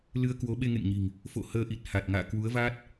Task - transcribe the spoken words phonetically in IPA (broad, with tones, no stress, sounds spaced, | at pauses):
l ɨ˧ ə̯ k w o˨˦ ɓ e˧ ŋ ḛ˧˨ ŋ ɲ i̤˨˩ ŋ | f o̰˧˨ h əː˧ ʔ i˨˩ t̚ h a˨˩ t̚ ŋ a̰ː˧˨ k w u˨˦ ə̯ v aː˦˥ t̚